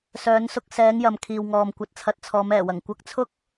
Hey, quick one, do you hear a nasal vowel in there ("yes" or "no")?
no